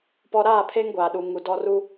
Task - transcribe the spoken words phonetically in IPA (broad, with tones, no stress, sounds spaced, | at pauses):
p ɔ˦ ɾ aː˦˨ pʰ e˦ ŋ ɡʷ aː˨ ɗ u˨ ŋ u˨ d ɔ˦ r u˦